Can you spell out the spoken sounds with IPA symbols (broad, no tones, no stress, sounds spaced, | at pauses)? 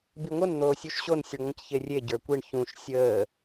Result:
b i ŋʷ ə n n̪ oː sʲ u ʃ ɕ o n sʲ ɯ ɳ ŋʷ ə̃ c ç e rʲ e ɟ ə˞ kʷ i ɳ ç ũ ʃ sʲ əː